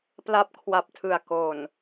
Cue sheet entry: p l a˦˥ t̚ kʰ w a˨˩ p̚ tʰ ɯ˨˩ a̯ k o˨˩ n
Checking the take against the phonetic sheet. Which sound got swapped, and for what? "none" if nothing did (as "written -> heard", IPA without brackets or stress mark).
t̚ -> p̚